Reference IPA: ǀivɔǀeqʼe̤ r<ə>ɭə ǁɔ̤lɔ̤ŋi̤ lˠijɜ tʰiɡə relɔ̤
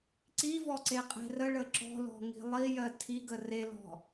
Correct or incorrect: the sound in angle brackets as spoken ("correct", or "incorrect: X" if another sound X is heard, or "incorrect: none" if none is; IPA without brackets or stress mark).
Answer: correct